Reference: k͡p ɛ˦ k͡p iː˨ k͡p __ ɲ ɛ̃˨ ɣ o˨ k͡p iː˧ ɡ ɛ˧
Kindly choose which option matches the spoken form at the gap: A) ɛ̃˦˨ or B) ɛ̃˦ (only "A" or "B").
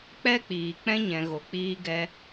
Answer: B